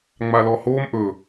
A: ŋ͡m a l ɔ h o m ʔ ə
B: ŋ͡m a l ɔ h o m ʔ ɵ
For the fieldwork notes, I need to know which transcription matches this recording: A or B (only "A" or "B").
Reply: B